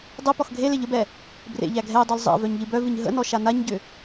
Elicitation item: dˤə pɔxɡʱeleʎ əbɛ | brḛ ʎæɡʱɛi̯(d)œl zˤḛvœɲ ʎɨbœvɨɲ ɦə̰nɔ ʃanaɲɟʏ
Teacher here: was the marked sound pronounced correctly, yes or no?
no